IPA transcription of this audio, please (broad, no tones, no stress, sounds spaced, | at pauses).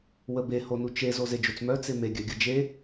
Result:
w ə b e h o n u t͡ʃ e z o z e d͡ʒ o t͡s m œ t͡s e m e ɡʲ œ ɡʲ ə d͡ʒ e